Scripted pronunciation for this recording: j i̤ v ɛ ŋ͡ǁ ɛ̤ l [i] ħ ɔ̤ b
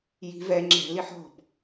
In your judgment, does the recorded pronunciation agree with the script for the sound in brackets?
yes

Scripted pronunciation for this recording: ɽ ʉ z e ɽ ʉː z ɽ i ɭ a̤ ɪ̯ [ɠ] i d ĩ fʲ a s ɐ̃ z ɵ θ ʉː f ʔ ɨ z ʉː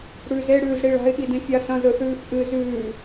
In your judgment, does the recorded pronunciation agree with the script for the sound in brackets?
yes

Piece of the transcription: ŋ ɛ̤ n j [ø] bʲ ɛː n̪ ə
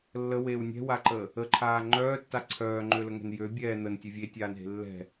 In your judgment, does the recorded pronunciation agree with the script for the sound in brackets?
yes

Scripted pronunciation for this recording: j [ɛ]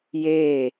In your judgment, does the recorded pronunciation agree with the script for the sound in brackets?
no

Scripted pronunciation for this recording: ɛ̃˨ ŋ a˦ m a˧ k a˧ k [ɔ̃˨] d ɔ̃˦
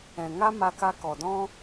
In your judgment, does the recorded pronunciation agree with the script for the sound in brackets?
no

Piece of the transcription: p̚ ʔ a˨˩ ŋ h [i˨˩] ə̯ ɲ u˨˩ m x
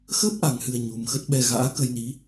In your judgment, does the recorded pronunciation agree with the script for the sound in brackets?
no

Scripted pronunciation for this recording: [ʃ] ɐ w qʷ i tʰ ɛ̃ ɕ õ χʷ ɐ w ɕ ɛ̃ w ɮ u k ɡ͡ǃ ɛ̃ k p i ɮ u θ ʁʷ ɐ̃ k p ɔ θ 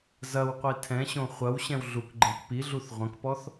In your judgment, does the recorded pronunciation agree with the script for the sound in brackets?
no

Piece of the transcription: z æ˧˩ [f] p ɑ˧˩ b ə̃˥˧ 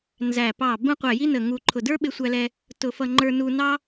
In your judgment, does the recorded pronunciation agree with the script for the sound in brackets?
no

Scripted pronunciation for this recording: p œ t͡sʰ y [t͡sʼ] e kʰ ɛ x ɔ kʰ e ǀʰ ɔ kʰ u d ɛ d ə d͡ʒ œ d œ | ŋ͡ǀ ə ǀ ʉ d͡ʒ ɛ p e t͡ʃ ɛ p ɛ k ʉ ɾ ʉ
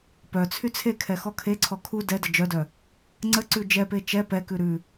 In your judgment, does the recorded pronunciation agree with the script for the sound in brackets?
no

